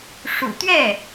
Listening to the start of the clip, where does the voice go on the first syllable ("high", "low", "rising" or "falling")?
low